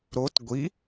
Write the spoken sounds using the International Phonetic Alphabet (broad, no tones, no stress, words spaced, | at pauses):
ɾot ɡʷi